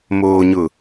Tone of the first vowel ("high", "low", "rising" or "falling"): low